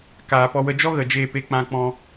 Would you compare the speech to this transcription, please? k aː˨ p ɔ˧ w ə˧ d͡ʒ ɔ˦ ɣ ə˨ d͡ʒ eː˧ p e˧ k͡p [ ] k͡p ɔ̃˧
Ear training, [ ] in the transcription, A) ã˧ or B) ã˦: A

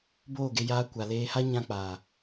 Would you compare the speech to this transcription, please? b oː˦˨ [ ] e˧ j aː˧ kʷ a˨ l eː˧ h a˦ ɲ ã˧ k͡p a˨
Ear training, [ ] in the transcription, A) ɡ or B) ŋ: A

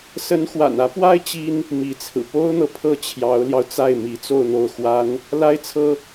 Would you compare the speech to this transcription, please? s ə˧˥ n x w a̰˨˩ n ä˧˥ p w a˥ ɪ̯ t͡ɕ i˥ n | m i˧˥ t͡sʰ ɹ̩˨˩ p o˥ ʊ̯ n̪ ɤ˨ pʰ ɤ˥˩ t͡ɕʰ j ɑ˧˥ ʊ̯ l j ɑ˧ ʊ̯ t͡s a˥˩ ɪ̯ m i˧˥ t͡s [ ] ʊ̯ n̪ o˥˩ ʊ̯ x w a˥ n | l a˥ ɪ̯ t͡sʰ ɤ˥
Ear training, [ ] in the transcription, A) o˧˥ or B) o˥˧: B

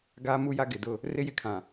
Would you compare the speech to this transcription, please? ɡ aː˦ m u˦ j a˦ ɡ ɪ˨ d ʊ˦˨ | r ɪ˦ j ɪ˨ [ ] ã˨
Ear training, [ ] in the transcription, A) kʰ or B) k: A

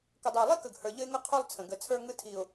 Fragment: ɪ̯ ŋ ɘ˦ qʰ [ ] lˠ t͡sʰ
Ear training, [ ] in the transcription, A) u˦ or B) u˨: A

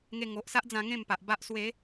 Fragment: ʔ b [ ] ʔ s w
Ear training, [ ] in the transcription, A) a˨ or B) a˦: B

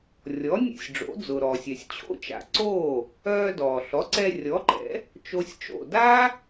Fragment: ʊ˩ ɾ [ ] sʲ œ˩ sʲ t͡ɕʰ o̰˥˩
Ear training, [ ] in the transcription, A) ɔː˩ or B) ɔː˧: A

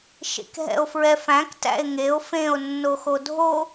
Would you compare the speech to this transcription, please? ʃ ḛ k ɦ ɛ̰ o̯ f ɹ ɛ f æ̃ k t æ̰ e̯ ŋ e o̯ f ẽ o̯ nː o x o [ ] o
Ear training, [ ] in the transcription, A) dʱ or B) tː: A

